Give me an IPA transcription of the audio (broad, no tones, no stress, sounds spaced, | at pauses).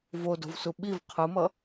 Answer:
v o d o̤ v s u ɓ i v qʰ ɯ m ʌ